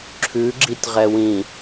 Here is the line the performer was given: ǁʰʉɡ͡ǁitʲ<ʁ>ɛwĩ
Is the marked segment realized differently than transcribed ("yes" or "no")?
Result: no